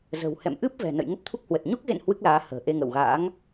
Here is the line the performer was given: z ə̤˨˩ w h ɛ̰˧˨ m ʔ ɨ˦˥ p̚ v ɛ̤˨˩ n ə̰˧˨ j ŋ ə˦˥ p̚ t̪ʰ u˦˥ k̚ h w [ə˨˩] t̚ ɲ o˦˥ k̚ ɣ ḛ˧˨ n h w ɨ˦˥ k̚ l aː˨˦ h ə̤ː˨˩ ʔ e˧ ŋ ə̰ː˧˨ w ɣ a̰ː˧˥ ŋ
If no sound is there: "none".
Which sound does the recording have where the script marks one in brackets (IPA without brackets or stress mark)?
ə˨˩